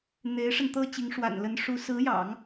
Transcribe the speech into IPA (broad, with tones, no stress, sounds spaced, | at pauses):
n̪ e˧˥ ɪ̯ ʂ ə˧ n t̪ ɤ˥ t͡ɕ i˧˥ ŋ ʂ w a̰˨˩ n l ə˧˥ n ʂ u˧˥ s ɹ̩˧˥ j ɑ̰˨˩˦ ŋ